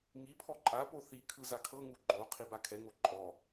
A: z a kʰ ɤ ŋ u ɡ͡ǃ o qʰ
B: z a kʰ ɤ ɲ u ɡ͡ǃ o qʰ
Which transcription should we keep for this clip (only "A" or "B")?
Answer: A